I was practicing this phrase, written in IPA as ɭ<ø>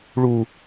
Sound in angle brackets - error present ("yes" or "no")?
yes